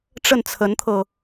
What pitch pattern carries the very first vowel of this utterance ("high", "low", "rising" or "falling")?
falling